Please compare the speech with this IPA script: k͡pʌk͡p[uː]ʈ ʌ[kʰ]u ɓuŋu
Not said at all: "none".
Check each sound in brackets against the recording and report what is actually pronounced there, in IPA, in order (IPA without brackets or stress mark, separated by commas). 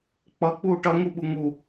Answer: uː, ŋ